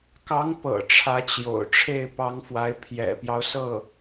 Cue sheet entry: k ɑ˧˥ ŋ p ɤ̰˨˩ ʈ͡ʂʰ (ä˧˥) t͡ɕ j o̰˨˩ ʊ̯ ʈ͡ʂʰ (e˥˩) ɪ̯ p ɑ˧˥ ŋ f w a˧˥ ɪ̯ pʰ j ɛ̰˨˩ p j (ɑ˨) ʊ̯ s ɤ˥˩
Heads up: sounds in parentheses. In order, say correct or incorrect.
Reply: correct, correct, incorrect: ɑ˦

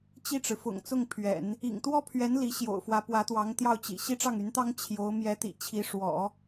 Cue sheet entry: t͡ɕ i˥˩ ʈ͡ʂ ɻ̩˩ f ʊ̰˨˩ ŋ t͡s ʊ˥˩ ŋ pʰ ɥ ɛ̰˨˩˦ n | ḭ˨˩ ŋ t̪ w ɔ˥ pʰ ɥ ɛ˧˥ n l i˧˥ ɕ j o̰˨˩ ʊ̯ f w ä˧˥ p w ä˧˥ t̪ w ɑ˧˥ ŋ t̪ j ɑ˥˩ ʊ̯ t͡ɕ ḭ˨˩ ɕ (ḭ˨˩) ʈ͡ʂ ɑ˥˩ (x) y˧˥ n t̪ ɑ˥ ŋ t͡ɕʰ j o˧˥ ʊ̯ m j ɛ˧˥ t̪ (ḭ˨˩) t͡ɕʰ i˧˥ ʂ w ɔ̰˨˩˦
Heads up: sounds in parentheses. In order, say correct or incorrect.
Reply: incorrect: i˥˧, incorrect: ŋ, correct

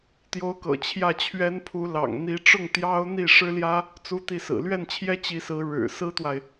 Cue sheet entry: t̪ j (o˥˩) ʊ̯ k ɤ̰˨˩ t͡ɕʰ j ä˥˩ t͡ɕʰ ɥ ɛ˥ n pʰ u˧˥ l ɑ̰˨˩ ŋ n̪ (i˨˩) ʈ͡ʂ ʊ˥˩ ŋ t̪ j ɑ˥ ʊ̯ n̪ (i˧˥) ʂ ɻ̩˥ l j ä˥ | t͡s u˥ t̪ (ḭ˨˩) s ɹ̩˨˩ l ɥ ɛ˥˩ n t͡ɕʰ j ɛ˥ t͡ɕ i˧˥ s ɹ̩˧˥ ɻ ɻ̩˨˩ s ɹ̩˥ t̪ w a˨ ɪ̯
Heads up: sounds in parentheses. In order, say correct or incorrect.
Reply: incorrect: o˧˥, incorrect: i˧˥, incorrect: i˥˩, incorrect: i˥˩

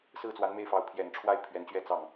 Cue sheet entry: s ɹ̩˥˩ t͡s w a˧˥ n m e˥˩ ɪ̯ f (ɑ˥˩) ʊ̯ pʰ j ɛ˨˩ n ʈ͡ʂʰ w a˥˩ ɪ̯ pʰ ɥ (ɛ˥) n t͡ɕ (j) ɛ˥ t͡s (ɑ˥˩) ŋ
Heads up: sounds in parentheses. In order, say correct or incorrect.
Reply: incorrect: ɑ˧˥, incorrect: ɛ˧˥, incorrect: ɥ, correct

